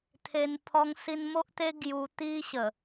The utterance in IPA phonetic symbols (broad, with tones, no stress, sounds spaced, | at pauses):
t̪ʰ e˧ n pʰ ɔ˧ ŋ s i˧ n m o˦ ʔ t̪ e˦ ɡ j u˧ t̪ i˦ ɕ ə˨˩